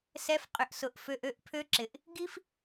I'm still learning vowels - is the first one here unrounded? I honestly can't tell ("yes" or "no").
yes